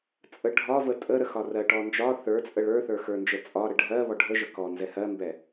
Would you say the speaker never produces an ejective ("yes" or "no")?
no